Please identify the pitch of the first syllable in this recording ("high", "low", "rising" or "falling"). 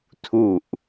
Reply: low